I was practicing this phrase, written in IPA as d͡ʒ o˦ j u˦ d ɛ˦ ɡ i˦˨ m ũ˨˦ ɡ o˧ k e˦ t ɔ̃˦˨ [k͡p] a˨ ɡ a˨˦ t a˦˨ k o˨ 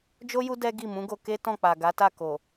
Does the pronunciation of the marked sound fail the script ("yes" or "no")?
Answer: no